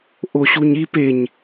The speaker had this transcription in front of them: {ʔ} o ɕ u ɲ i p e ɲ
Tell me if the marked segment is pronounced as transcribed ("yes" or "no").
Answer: yes